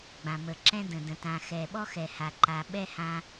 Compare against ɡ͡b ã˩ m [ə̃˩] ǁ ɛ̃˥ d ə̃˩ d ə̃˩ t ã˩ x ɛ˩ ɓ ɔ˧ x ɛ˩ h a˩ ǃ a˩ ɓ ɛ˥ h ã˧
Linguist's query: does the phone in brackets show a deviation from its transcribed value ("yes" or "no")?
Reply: yes